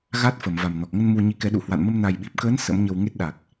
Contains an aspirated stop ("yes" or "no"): no